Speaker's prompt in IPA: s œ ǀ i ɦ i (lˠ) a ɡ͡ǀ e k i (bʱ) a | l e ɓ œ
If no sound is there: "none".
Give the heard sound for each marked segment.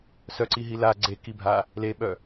l, bʱ

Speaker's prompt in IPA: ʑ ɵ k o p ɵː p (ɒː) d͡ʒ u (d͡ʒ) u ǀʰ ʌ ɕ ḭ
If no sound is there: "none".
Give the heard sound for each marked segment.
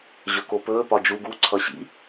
ɒ, ɡ

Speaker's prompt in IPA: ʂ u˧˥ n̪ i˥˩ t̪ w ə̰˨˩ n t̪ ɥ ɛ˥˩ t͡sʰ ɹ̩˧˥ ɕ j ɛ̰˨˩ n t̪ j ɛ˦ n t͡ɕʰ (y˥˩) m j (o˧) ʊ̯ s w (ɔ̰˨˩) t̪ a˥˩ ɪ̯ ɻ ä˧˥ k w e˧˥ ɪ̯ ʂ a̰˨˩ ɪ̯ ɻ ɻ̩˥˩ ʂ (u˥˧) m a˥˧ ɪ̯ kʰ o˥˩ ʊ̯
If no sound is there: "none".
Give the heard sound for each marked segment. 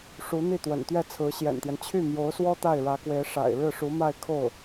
y˥˩, o˧˥, ɔ˥, u˧˥

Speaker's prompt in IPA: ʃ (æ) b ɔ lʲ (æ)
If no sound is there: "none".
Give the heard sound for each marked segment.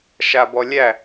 a, æ

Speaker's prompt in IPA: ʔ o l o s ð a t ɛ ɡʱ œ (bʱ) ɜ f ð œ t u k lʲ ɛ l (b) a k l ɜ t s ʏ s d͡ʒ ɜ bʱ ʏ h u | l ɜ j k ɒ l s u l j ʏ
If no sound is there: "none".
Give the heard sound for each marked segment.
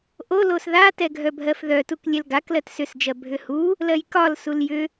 bʱ, ɡ

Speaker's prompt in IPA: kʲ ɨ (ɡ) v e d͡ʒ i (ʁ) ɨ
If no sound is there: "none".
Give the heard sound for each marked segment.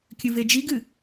none, ɡ

